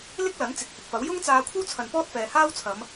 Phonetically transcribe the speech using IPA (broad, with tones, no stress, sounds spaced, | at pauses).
l ɪ˥ k̚ l ɐ˨˥ n t͡s ɪ˨˥ k̚ h ɪ˨ k̚ f ɐ˨˥ w j ʊ˥ ŋ t͡s aː˧ kʷʰ ɐ˥ w t͡sʰ ɐ˨ n p ɔː˥ t̚ f ɛː˨ h aː˥ w t͡sʰ ɐ˨˧ m